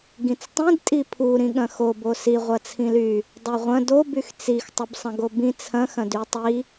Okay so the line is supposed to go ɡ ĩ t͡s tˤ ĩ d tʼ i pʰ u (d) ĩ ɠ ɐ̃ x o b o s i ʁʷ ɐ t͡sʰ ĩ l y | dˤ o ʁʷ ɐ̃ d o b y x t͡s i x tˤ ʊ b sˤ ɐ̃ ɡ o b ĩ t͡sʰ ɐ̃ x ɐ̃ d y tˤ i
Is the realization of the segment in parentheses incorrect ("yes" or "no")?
yes